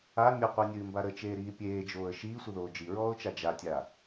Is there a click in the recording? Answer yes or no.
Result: no